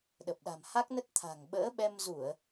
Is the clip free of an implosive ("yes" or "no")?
no